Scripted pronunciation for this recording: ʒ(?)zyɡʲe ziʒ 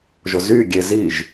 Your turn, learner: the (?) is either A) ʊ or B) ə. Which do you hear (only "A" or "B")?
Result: A